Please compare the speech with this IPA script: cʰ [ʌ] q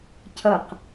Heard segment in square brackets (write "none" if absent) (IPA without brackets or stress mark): ʌ